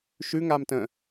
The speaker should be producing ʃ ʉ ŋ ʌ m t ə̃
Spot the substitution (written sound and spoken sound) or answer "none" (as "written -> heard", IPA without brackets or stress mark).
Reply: ʌ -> a